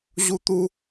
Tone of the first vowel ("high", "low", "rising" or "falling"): high